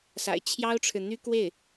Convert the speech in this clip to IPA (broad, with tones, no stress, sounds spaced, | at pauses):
s a̰˨˩ ɪ̯ t͡ɕʰ j ɑ˥ ʊ̯ ʈ͡ʂʰ ɻ̩˨ n̪ y˥ k w e˥˩ ɪ̯